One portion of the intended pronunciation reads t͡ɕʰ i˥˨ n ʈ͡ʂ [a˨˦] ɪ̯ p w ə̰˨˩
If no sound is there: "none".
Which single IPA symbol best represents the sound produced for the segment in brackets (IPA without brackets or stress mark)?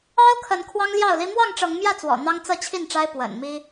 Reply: a˦